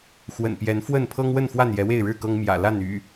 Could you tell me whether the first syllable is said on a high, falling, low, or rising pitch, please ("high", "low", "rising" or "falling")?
low